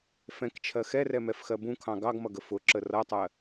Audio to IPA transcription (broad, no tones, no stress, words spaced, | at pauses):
fɛ̃kt͡ʃʰɜ xɛrɛmɛfxɜ bũkʰɑ̃ ɡɑɡmʌɡə fʊǁə rʌtˤɜ